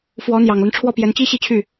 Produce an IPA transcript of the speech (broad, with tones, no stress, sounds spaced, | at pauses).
f w ɔ˧˥ n̪ j ɑ˨˩ ŋ l ə˦ n ʈ͡ʂʰ w ɔ˥˩ p j ɛ˧˥ n t͡ɕ i˥ ɕ i˥ t͡ɕʰ y˥˩